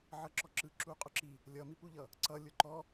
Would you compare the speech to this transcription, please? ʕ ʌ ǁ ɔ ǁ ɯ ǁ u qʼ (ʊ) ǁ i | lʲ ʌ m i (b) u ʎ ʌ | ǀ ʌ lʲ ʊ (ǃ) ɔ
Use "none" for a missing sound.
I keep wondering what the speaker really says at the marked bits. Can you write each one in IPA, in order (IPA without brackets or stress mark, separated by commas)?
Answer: ʊ, p, ǃ